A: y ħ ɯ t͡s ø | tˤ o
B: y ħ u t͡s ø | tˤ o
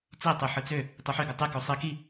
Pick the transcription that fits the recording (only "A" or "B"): A